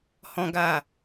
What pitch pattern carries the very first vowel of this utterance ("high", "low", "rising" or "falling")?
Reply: high